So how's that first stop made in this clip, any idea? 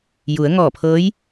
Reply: aspirated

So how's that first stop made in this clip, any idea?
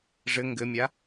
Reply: plain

